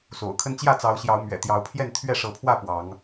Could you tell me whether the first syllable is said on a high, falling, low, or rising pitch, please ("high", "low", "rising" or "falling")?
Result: low